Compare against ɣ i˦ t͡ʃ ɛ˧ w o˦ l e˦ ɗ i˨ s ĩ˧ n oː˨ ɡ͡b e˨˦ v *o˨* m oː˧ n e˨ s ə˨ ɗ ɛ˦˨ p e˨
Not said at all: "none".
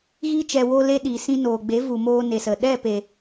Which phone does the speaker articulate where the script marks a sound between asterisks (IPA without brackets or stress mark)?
u˨